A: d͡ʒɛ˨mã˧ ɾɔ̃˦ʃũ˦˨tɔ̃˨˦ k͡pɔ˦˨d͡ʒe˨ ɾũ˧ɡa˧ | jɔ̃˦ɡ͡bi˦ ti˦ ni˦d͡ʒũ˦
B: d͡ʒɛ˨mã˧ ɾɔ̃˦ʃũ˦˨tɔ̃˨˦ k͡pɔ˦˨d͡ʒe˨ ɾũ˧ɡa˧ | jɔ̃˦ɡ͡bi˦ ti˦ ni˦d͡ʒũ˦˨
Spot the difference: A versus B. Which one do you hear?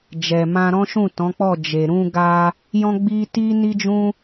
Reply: A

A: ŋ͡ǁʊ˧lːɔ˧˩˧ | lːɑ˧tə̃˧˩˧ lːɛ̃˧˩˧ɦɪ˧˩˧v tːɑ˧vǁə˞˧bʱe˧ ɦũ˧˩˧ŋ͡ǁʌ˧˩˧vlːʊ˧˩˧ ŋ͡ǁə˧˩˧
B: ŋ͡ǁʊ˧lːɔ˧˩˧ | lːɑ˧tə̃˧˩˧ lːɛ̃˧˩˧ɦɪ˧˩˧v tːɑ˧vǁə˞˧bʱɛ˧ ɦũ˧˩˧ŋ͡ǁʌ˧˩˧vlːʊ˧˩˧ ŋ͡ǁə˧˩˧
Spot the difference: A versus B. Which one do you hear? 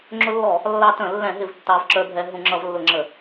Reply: B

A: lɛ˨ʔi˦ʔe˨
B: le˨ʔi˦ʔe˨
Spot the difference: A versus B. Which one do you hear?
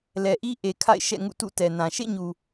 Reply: A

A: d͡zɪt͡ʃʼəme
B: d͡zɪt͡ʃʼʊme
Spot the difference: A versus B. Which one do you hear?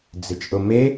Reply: B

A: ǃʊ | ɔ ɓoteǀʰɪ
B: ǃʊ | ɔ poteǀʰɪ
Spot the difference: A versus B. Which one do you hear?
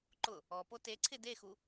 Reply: B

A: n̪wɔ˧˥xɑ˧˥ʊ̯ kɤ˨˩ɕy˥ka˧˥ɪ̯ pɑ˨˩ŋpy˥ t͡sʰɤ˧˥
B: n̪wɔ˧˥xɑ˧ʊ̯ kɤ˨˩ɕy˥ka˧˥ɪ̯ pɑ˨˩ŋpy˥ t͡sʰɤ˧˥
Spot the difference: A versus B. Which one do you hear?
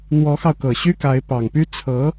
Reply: B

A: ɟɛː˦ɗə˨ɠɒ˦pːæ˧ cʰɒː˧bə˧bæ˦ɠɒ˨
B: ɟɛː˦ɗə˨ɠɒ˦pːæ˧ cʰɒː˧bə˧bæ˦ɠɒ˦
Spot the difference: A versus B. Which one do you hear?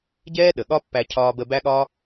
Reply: B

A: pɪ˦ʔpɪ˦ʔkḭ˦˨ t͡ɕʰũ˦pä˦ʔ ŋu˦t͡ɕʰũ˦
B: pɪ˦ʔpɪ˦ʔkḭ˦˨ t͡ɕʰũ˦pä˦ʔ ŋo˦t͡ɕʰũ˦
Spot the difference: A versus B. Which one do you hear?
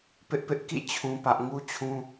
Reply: A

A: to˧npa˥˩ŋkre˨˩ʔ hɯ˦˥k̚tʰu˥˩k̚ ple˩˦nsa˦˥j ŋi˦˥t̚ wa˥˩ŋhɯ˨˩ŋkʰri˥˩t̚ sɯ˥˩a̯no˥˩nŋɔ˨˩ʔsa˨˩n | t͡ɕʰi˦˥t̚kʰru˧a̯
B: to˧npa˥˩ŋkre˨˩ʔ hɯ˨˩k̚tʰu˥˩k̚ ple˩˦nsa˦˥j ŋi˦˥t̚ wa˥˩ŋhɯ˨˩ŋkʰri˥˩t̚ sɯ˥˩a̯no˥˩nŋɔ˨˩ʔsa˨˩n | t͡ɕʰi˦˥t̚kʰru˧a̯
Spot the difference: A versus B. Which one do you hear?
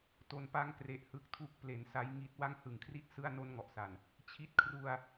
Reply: A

